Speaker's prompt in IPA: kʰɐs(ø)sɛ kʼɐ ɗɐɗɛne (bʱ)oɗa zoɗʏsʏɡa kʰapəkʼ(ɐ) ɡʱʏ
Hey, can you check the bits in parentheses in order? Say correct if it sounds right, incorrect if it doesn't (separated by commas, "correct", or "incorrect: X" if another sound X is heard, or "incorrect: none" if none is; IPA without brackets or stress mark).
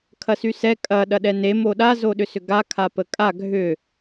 incorrect: y, incorrect: m, incorrect: a